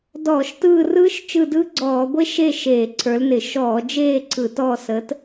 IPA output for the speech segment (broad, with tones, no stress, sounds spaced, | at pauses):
d ɔː˧˩˧ ʃ t ɯː˦˨ r ɯː˦˥ ʃ t͡ʃ ɯ˦˨ d ɯː˦˥ ɡ͡ǀ ɔː˧˩˧ ɡʷ e˦˥ ʃ e˦˨ ʃ eː˧˩˧ ǀʰ ə˞˨˥ l n ɪ˧˩˧ ʃ ɔː˧˩˧ d͡ʒ eː˦˨ ǀʰ ɯ˧˩˧ t ɔː˦˨ s əː˨˥ t